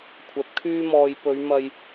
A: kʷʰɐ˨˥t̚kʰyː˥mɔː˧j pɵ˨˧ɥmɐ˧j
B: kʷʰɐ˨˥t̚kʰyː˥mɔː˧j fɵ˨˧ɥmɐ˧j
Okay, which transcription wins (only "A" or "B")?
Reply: A